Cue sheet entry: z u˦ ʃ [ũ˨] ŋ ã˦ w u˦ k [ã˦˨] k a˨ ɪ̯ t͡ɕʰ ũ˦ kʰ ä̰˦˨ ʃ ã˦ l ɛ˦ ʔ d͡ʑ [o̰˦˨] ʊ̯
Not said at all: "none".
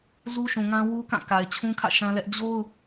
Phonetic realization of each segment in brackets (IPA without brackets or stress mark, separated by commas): ũ˨, ã˦˨, o˦